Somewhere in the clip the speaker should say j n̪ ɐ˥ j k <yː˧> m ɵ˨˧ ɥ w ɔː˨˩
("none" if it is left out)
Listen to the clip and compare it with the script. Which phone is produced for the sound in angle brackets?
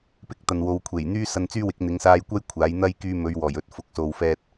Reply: yː˧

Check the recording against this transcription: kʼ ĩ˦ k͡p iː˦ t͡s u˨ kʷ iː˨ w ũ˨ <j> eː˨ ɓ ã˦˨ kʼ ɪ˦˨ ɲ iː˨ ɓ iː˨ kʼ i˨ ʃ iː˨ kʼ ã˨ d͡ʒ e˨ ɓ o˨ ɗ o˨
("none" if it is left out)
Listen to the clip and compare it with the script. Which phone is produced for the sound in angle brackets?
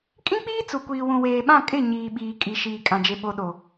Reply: w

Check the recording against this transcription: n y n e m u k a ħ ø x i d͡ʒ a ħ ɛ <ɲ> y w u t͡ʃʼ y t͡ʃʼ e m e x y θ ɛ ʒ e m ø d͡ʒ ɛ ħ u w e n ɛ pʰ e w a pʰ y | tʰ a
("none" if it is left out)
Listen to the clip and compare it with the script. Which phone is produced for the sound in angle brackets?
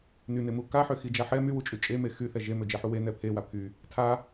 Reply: m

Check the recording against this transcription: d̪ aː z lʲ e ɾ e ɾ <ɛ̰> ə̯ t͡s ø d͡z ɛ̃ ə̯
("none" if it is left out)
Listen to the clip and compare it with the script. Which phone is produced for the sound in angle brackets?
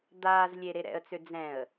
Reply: ɛ̰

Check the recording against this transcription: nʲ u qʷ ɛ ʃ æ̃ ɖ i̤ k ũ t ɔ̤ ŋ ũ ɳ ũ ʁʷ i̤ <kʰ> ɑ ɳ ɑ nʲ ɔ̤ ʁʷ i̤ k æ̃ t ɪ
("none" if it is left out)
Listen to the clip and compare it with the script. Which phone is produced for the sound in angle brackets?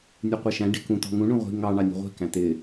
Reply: ŋ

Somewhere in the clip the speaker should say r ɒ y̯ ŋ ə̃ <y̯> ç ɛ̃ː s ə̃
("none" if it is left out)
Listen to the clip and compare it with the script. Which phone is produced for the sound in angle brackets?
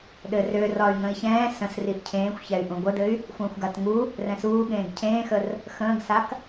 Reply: i̯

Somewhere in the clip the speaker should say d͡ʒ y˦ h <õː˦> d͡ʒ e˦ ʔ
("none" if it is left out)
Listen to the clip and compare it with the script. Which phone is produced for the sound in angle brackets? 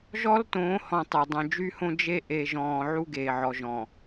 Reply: õ˦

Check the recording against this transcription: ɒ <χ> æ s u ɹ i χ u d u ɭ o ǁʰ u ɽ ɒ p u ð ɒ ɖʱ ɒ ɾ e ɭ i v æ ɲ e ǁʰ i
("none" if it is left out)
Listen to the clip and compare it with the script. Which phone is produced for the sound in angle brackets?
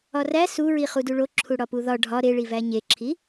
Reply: r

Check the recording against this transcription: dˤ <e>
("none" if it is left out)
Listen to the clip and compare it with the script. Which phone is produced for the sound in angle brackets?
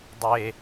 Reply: e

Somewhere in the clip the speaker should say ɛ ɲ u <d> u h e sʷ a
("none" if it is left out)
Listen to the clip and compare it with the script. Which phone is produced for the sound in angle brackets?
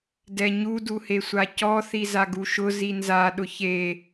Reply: d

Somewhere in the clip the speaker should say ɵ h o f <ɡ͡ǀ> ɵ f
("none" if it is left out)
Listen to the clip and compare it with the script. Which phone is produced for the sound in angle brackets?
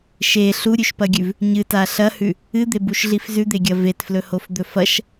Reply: d̪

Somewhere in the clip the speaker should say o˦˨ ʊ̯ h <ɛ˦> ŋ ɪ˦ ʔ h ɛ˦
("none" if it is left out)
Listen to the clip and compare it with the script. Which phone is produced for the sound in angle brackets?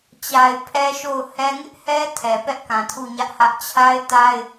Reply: ɛ˦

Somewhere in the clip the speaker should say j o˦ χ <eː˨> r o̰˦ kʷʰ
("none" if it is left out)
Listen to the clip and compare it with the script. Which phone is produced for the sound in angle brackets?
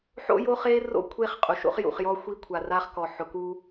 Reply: eː˦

